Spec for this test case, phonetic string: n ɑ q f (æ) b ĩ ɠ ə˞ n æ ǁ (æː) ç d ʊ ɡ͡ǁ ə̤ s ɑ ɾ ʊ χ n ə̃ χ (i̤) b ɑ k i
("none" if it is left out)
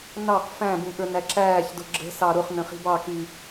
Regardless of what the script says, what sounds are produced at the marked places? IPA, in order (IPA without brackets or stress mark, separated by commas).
æ̃, æː, i̤